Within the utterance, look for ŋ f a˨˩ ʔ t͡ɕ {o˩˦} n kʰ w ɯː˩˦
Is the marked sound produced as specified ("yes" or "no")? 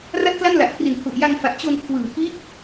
no